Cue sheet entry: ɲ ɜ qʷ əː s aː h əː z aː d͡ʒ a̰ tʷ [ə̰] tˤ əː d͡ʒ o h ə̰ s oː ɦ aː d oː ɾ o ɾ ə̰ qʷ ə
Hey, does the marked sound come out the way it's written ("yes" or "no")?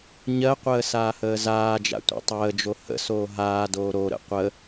no